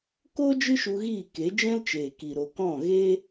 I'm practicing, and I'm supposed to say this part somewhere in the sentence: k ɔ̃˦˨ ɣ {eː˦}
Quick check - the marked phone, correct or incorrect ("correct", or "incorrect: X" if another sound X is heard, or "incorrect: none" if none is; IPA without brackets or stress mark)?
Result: correct